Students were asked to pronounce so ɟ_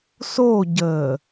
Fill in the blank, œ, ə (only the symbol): ə